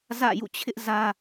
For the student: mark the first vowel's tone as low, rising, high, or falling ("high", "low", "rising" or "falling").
falling